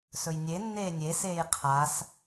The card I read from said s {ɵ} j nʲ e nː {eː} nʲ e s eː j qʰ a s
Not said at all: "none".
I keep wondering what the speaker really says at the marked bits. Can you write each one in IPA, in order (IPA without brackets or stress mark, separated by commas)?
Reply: ɵ, eː